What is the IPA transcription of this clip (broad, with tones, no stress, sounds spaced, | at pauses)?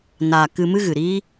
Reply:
n aː˨ k ɨ˧ m ɨ˦ ɣ ɨ˨ ɾ iː˦